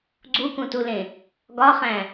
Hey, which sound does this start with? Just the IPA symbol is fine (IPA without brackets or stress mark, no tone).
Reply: ɡ͡ǀ